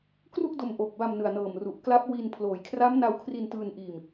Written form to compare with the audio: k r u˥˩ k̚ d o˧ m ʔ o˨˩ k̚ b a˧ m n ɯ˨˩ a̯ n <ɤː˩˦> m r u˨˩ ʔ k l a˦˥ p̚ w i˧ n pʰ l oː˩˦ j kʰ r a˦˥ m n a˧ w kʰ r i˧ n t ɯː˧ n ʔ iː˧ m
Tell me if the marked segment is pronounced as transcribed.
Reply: no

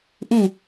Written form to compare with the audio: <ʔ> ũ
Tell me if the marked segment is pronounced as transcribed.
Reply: yes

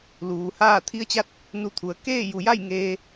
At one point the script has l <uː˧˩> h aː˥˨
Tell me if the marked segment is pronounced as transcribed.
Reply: no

